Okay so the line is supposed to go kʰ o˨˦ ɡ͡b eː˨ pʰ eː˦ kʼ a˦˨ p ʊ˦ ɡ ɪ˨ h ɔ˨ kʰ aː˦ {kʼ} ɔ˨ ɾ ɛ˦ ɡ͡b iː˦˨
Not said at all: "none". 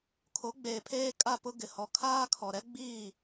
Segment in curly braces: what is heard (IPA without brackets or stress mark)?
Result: kʰ